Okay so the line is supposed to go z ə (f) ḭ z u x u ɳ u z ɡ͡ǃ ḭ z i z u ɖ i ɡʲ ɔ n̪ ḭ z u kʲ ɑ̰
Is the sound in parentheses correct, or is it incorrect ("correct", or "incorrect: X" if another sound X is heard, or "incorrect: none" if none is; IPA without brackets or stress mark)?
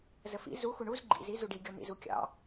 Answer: correct